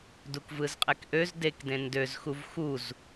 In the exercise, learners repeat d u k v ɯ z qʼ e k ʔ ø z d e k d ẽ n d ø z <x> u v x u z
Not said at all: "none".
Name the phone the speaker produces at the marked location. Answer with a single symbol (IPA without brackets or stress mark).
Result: x